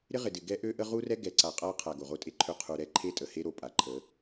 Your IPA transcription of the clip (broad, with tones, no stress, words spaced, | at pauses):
ɾɪ˦ʁɪ˨dɪ˨ ɡɛ˦ʔø˦ʔə˦ ʁu˦rɛ˦ ɡɛ˨ǀa˨ qʼa˦qʰa˨ ɡo˨ʁo˦tʼe˦ǃʰø˦ qʰu˨ɾɛ˦ ǃʰe˦tʼə˨he˦ɾo˨ pʼa˨ǃʰə˨˦